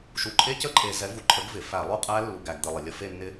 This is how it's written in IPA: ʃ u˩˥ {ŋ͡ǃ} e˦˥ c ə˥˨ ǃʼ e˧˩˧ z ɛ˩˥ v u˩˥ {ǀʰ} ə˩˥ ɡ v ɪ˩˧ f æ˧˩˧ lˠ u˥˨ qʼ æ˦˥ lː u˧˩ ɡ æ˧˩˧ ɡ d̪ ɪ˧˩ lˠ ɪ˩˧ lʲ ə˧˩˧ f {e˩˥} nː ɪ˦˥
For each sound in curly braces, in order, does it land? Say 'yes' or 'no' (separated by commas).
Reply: no, no, no